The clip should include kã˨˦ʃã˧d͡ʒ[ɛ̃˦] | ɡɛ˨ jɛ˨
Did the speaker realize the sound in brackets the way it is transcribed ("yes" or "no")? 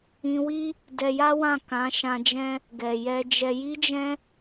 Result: yes